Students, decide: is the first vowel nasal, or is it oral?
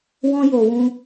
nasal